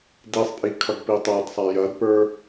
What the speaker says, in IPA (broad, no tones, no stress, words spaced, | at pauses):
disˤpʼi kʰʌɡpitˤadsˤa jɐdpə˞